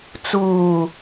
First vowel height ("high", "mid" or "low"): high